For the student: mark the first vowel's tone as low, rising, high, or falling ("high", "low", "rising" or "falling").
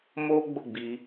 high